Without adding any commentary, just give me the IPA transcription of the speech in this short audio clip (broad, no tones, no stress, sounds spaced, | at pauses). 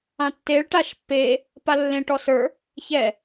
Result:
ã tː e ɭ ʈ a ʃ pː e | p a lː ẽ ʈ ɔ s ə˞ | ç ɛ